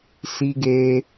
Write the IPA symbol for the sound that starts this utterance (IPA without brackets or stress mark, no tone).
s